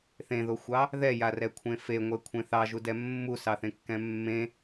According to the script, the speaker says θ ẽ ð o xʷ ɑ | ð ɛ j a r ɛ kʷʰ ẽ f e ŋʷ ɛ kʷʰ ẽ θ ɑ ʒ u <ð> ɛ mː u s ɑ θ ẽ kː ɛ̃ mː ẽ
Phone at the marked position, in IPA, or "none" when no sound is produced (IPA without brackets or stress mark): d